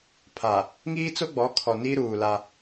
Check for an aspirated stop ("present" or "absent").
present